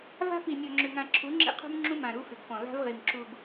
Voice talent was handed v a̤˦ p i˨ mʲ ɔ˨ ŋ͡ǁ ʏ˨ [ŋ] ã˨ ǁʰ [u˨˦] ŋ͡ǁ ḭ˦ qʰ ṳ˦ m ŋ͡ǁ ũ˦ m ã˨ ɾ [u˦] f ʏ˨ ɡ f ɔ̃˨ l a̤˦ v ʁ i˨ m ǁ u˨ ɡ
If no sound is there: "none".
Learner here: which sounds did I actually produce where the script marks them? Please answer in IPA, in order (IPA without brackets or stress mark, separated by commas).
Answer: ŋ, u˨˦, u˦